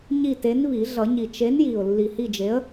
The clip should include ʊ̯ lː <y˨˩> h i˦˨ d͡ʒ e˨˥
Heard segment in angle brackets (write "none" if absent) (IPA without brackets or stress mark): i˨˩